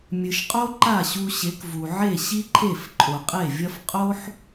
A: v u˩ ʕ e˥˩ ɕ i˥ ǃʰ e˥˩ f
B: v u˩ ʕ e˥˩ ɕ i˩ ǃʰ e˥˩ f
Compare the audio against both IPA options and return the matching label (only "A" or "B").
A